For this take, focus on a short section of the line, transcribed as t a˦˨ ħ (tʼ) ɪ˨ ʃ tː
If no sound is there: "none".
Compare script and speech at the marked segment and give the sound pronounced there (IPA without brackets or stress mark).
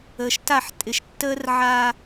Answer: tʼ